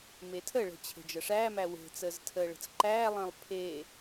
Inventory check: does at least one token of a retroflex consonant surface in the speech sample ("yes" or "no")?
yes